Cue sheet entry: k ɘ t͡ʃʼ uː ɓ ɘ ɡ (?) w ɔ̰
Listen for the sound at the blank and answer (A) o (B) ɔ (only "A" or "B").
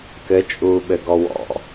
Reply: B